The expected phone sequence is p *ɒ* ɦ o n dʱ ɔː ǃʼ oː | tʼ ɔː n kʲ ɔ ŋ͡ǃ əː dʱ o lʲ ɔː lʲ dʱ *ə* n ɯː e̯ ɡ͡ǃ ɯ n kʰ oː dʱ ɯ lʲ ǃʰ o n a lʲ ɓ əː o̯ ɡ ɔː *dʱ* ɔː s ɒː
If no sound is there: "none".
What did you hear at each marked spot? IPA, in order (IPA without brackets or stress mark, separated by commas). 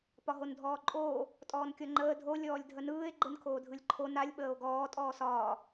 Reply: ɒ, ə, tʼ